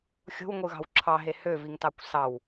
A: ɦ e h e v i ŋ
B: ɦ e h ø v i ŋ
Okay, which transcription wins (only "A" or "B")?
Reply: B